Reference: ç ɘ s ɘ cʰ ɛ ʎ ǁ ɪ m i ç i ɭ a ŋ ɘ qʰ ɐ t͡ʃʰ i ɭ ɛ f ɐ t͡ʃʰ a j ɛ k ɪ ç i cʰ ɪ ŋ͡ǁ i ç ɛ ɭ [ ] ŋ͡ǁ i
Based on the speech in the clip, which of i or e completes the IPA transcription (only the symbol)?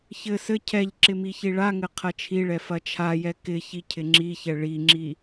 i